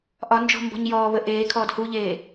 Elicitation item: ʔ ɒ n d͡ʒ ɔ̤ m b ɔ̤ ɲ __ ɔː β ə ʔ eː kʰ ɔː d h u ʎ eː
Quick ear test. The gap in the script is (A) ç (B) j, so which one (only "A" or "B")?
B